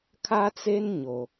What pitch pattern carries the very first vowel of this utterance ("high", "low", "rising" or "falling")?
high